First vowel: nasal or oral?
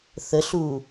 oral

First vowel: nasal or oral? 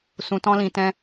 nasal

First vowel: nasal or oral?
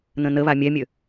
nasal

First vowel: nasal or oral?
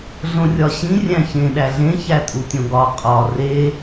nasal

